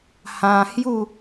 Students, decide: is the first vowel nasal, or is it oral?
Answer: nasal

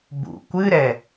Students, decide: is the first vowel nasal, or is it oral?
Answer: oral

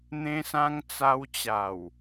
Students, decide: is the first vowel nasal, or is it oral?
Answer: nasal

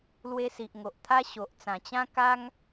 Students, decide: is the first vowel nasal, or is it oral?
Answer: oral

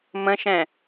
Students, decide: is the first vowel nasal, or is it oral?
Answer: nasal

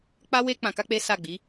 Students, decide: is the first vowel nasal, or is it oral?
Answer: oral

